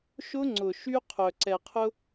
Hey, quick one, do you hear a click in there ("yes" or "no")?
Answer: yes